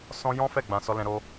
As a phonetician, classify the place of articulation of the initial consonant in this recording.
alveolar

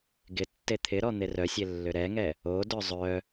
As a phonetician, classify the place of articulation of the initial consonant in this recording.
velar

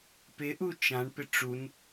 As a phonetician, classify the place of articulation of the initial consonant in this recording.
labial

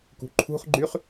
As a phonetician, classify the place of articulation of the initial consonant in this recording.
velar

